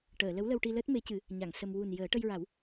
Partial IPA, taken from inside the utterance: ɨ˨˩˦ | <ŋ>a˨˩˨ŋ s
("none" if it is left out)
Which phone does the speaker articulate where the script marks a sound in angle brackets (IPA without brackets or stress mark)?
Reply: ɲ